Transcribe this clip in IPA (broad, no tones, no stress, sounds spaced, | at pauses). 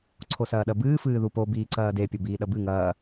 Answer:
ǀʰ o s ɐː ɗ ɐ b ɨː f ɨː ð u p o b iː ǀ ɐː d e pʲ o b iː ɗ ɐ b ɨ ŋ ɐː